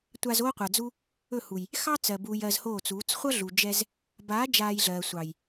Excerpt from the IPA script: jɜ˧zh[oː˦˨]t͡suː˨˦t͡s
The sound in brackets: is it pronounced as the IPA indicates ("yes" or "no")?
yes